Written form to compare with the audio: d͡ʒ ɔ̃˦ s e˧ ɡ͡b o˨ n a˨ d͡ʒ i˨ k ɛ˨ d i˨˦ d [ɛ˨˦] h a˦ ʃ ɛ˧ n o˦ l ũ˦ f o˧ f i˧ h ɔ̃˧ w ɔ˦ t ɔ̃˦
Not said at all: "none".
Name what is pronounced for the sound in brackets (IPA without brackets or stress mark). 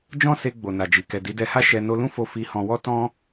ɛ˧